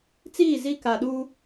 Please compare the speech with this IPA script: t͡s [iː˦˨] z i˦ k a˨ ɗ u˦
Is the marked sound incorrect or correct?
correct